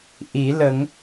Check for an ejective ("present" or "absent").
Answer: absent